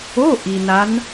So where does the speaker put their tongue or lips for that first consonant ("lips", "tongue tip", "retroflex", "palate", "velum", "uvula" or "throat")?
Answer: throat